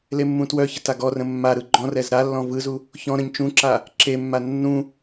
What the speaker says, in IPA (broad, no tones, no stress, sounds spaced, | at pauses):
l e mː ũ t w œ ç ə t a ɡ ɔ r ə̃ mː a ɾ ɯ ɡ͡ǃ ɔ̃ r ɛ z ɾ a lː ɔ̃ v ɯ z u | ç ɔ̃ ɾ ə̃ ɲ t͡ʃ ũ ǁ a | ǁ e mː a nː ũ